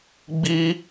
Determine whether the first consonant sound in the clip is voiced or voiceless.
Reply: voiced